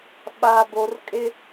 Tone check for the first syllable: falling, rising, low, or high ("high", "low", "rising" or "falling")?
low